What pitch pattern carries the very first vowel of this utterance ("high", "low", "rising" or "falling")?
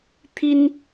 high